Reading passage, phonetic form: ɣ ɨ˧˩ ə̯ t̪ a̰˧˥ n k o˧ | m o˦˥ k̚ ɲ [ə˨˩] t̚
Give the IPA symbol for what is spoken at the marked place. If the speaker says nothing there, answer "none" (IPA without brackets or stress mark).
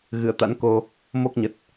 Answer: ə˨˩